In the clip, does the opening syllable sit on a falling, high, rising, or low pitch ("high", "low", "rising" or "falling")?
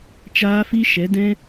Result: high